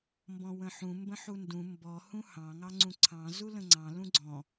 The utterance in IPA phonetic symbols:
mbɔ̃wə̃ħũ mbə̃ħundũ mbɔ hũhɑ̃ ŋɑŋ͡ǀũǀʰɑ̃ zulə̃ŋ͡ǀɑ̃ lũɡ͡ǀɔ̃

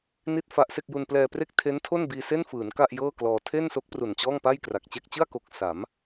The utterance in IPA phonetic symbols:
ni˥˩t̚fa˦˥ʔse˥˩k̚ ju˧nplɛː˧pre˥˩k̚ tʰe˦˥ntʰo˥˩nbiː˧ se˥˩nfɯː˩˦n ka˥˩ʔjɤː˥˩klɔː˧ tʰe˥˩nso˦˥k̚ pru˨˩nt͡ɕɔː˥˩ŋpa˥˩j kra˨˩k̚t͡ɕe˥˩k̚ t͡ɕɯ˥˩a̯ko˨˩k̚ sa˩˦m

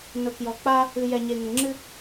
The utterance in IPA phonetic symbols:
nʊ˨kjɔ˨k͡pa˦ | ɨ˨ jɛ˨ɲe˨ŋə˨ŋ͡ǁɨ˦

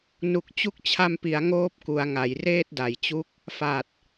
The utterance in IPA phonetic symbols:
nu˨˩k̚t͡ɕu˦˥k̚t͡ɕʰa˧mpi˩˦a̯ ŋoː˦˥p̚ku˩˦a̯ ŋa˩˦jreː˥˩t̚da˩˦jt͡ɕu˦˥k̚ | fa˨˩t̚

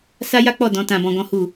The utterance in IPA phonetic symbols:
sa˦ja˦k͡pɔ˦˨ dɔ̃˨˦tã˧bɔ̃˧ ɡɔ̃˦hu˦˨

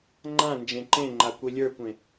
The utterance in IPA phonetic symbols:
ŋ͡ǃã nd͡ʒẽǃẽŋ͡ǃa kʷilʲə˞kʷẽ

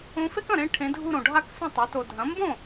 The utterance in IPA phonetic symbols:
õ˧˥fe˥k ɐ̃˥˩ɾẽ˥˧ ʈʰẽ˧˥dʱu˥˧ɾõ˨ ɖʱa˥˧ksũ˥˩tˤe˩˥to˨ dʱɐ̃˩˥mbõ˥˩

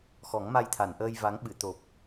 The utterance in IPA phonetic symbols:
xɔ˨˩˦ŋma˧jt̪ʰa˨˩˨n ʔəː˧j va˧˥ŋɓɨ˨˩˨ t̪o˨˩p̚

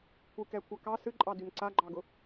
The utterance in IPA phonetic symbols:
kʷʰɨkɛkʷʰa kɑ sɨǃʼɑdyn ǀaɡ͡ǃɑɡʊ

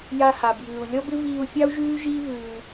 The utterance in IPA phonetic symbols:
ja˧ha˨bjʉː˨u̯ lʲɔ˦bɪ˦viː˧u̯fʲɑ˦u̯ ʒʉː˦ʒiː˦ vʉː˧

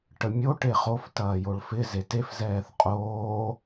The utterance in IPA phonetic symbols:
ʈəmʲo ʈeχof tɐːjoɭfɪ zetef zɛːθqʼoː

